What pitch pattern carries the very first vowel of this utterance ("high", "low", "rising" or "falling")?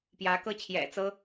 rising